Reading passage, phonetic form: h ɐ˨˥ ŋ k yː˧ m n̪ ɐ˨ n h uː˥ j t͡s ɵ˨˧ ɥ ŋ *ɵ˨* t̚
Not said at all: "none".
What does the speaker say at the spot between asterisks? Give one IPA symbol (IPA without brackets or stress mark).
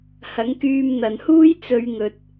ɵ˨